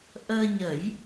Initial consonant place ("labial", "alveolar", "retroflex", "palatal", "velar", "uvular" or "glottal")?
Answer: glottal